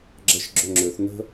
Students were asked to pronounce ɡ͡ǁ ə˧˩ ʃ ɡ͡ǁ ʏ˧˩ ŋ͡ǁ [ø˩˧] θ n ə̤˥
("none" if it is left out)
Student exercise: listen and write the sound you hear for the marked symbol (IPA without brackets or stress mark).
ø˩˧